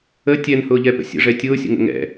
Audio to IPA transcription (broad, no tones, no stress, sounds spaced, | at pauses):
ə tʲ ɛ n h ʊː ʎ ɛ p ə̰ sʲ ə̰ ʐ ɛ tʲ ʊː sʲ ə̰ ŋ ə̰ ŋ ɛ̰